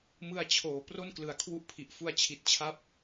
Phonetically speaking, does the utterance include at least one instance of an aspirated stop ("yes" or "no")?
yes